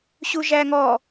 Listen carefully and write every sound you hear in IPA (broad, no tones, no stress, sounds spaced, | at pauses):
ɕ u ʒ æ ŋ ɔ